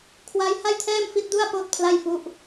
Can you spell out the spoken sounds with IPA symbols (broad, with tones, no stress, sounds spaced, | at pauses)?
kʰ w a˦˥ j h a˥˩ j tʰ ɛː˥˩ m f i˦˥ t̚ d u˥˩ a̯ p oː˥˩ t̚ pʰ l a˥˩ j f u˦˥ ʔ